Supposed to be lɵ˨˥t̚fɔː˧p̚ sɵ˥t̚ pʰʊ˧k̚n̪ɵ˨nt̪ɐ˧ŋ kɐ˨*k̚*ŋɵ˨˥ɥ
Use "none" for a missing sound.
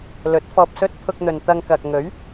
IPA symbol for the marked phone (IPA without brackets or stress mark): k̚